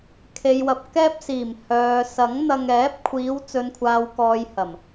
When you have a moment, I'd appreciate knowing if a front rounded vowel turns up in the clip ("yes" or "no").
yes